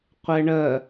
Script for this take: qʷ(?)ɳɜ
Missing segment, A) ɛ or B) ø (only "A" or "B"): A